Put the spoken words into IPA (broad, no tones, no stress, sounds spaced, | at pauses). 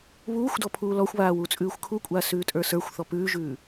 β uː xʷ d ɔ pʰ uː l ɔ xʷ β aː w u t͡sʼ ʉː xʷ kʰ u kʷʼ aː s ʉː tʼ ə˞ s ə˞ xʷ θ ɔ p ʉː ʒ ʉː